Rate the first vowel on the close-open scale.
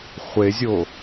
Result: mid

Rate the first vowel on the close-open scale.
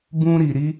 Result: close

